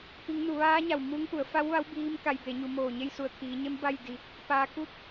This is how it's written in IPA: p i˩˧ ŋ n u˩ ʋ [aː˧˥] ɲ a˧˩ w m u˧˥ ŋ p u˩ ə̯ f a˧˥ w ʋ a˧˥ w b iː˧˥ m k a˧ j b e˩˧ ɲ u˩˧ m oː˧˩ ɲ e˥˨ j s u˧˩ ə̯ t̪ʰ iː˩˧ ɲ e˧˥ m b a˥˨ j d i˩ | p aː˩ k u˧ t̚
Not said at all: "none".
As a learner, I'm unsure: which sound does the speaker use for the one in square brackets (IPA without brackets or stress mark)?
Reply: aː˧˥